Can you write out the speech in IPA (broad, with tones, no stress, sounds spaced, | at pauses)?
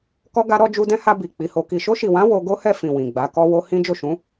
k ɔ˧ ɡ a˧ ɾ ɔ˧ d͡ʒ u˧ d ɛ̃˦ h a˧ b i˨ k͡p i˨˦ h o˧ k i˨ ʃ o˧ ʃ i˨ w ã˨˦ w o˧ ɡ o˦ h ɛ˦˨ f ĩ˨ w ĩ˨ ɡ͡b a˨˦ k ɔ˦ w o˦ h ĩ˦ d͡ʒ o˦˨ ʃ ũ˨˦